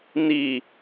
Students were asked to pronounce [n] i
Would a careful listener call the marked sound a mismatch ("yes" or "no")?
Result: no